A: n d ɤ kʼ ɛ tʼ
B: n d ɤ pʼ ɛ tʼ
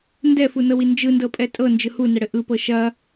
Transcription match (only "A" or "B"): B